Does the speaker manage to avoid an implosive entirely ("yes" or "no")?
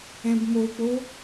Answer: yes